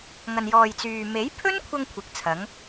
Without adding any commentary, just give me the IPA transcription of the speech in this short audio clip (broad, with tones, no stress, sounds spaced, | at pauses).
ŋ ɐ˨ n j ɔː˨ j t͡s yː˨ m e˨˥ j pʰ ɵ˥ n kʷʰ ɐ˧ ŋ kʷʰ ɪ˨˥ k̚ t͡sʰ ɐ˨˥ ŋ